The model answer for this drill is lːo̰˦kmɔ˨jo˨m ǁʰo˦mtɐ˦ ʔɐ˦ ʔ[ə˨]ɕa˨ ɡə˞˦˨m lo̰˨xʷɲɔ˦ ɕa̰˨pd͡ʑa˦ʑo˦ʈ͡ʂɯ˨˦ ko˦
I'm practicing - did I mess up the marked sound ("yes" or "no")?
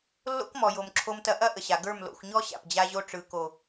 no